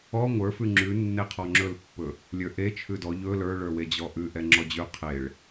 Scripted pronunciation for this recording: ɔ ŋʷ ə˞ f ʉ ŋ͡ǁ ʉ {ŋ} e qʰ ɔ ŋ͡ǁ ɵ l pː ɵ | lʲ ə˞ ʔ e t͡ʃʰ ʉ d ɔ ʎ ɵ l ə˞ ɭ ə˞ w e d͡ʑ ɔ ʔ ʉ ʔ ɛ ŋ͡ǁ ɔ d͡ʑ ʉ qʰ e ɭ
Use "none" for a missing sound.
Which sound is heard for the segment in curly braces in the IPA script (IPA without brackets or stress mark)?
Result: nː